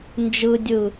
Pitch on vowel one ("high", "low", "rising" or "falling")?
high